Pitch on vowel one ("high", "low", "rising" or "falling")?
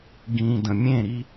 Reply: low